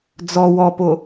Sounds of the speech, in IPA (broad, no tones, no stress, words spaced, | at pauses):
d͡zɔ wɔpo